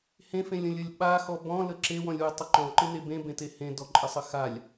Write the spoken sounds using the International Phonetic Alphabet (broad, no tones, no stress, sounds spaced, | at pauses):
h ẽ f ẽ lʲ ə̃ lʲ ə lʲ ɓ a x ɔ b ɔ̃ l ə ǁ e w ɔ̃ lʲ w ɯ tˤ ə ǃ ɔ̃ ǃ ɯ n e b ẽ b ẽ t e h ẽ d ɔ ǃʼ ə sˤ ə x a lʲ